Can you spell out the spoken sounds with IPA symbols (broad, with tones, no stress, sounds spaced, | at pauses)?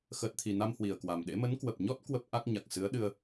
x əː˨˩ t̚ t̪ʰ i˨˩ n a˧ m h w i˨˩ ə̯ k w a˨˩ m ɗ ḛ˧˥ m ə˨˦ n k w ə˨˩ p̚ ɲ ɔ˦˥ t̚ k w ə˦˥ p̚ ʔ a˦˥ k̚ ɲ a˨˩ k̚ s ɨ˨˦ ə̯ ɗ ɨ˧ ə̯